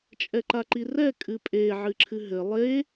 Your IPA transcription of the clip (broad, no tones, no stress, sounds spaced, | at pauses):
t͡ʃʼ ɛ ǃ a ǃ i r ɛ kʼ ɨ pʼ e ʕ ɨ ǁʰ ɨ ɦ ɘ lˠ e